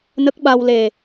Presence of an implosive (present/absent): present